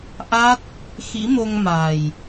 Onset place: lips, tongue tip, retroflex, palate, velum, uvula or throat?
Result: throat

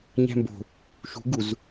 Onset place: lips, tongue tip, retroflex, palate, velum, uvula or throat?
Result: palate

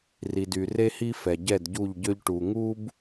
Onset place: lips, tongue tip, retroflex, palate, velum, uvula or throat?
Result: tongue tip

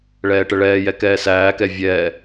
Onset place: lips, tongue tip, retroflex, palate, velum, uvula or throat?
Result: retroflex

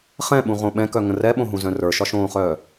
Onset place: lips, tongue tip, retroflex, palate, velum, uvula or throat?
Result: uvula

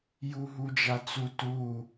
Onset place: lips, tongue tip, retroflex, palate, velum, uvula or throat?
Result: palate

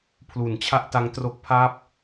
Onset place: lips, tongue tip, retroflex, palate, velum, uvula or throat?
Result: lips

